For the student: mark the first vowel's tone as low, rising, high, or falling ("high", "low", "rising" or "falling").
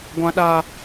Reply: high